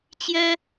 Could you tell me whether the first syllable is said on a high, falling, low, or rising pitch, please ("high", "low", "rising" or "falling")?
high